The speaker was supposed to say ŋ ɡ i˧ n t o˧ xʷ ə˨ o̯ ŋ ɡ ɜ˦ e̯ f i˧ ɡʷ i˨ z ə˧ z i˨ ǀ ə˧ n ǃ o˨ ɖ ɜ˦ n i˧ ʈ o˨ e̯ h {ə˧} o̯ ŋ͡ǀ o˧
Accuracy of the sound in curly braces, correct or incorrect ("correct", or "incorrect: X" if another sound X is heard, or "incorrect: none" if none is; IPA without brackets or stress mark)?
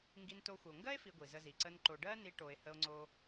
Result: correct